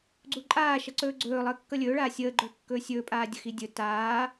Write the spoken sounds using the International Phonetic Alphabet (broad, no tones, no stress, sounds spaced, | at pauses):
ɡ͡ǀ u ǃʼ aː ʃ ʌ ǀ ɵː ɡ͡ǀ ɵː lˠ əː kː ʌ lʲ ɵː ɭ aː sʲ əː ɡ͡ǃ ɵː kː ɵː sʲ ɵː pʼ aː dʲ ə x i dʲ ɵ t aː